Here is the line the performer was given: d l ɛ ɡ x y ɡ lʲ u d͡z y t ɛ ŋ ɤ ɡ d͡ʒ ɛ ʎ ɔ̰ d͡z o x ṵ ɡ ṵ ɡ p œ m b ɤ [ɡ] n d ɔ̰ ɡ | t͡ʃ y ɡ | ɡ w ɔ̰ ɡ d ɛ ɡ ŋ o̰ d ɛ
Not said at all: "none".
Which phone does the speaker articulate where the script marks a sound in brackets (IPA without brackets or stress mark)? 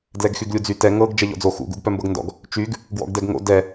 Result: ɡ